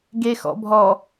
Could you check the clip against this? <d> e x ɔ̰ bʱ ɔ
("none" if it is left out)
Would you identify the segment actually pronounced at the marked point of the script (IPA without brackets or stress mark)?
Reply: ɡ